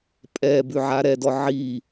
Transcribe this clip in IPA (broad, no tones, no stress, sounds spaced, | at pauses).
pʼ ɛ b ʉ ʕ a ɾ ɛ d ɔ ʕ i